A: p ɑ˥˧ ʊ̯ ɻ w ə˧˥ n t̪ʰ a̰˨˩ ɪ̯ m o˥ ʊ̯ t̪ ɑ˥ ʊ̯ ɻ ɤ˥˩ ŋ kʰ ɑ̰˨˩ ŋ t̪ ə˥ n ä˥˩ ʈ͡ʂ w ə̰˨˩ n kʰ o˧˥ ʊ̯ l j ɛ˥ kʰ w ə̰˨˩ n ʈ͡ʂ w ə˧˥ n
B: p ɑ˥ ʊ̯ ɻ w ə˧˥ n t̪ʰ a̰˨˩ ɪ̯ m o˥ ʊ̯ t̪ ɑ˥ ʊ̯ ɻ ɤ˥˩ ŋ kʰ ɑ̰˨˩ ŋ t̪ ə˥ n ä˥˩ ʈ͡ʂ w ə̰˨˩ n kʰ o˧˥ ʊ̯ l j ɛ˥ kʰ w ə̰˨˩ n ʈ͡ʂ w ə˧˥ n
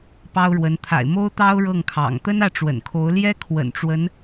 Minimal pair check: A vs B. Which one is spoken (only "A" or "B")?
B